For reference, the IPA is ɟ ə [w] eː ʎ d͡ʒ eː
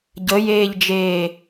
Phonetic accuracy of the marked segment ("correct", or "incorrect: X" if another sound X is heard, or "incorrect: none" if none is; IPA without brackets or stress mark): incorrect: j